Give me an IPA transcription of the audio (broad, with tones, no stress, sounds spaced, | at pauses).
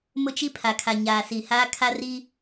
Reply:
m ʊ˦ t͡ʃ i˦ pʰ a˨ kʰ a˨ ɲ aː˨ s i˨ h aː˦ kʰ a˦ r i˦